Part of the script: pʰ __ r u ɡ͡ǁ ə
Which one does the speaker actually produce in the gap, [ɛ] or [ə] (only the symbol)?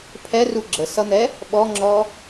ɛ